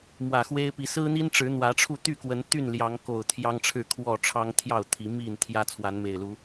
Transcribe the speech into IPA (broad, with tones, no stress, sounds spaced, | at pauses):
m w ä˨˩ x w e˦ ɪ̯ p i˨˦ s ɹ̩˦ n̪ i˦ n ʈ͡ʂ ɻ̩˨˦ n̪ w ä˨˦ ʈ͡ʂʰ u˥˨ t̪ y˥˨ k w ə˨˦ n t̪ y˥˨ n l j ɑ˨˦ ŋ k o˨˩ ʊ̯ t̪ʰ j ɑ˦ ŋ ʈ͡ʂʰ ɻ̩˥˨ kʰ w ɔ˥˨ ʈ͡ʂʰ ɑ˦ ŋ t̪ʰ j ɑ˥˨ ʊ̯ t̪ʰ i˨˦ m i˥˨ n t̪ʰ j ä˦ t͡sʰ w a˨˦ n m e˨˩ ɪ̯ l u˨˦